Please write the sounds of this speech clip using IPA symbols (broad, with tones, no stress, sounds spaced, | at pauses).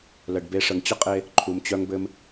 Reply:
l ə˨ ɖ b e˧ ʂ ə˨ ŋ t͡ɕ ə˦ qʼ e˧ | ǃʰ u˨ m t͡ɕ œ˧ ŋ b ɘ˧ m